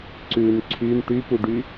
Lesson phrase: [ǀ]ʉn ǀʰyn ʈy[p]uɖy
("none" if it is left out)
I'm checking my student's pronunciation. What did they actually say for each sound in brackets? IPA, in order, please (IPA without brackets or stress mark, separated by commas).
ǀ, p